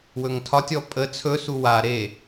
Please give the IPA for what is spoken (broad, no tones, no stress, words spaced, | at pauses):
wɵŋtʰɒtʲɔ pʼə t͡sʰɵsu wa ɾe